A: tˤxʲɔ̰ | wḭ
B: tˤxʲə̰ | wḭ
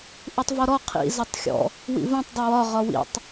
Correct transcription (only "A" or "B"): A